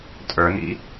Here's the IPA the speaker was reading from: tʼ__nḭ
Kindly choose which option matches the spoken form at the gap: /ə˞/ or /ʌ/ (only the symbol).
ə˞